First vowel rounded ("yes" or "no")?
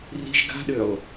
no